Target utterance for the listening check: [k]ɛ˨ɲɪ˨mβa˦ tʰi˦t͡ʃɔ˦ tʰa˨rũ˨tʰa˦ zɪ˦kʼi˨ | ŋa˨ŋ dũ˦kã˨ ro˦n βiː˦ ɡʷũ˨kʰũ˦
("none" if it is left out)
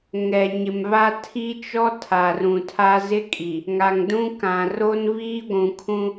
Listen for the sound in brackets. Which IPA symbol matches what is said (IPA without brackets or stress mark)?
ŋ